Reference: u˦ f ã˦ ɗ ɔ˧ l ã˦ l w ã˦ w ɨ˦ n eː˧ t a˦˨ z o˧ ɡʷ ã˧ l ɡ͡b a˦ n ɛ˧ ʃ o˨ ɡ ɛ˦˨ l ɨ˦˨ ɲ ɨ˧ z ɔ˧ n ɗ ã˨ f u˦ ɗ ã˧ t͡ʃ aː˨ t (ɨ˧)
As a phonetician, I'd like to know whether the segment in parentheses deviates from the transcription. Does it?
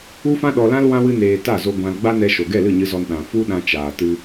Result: no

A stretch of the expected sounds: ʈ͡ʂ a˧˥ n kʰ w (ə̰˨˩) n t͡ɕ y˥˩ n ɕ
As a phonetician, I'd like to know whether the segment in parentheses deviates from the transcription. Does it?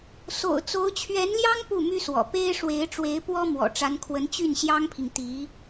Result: yes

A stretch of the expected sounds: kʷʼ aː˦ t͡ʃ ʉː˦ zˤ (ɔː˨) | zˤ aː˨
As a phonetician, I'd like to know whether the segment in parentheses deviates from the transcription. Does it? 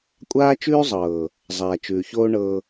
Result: yes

